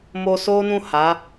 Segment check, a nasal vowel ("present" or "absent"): present